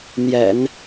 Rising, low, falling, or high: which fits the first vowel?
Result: low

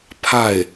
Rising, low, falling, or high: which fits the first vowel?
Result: falling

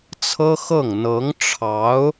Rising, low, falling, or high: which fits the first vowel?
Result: high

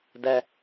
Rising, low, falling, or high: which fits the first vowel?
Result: high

